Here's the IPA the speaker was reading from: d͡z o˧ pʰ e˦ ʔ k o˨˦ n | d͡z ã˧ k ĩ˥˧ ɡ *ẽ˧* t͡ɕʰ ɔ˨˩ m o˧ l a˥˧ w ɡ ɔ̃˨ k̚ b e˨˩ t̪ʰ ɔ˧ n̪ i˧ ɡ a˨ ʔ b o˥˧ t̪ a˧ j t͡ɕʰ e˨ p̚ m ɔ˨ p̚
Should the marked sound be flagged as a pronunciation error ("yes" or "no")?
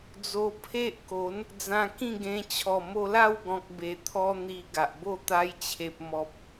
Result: no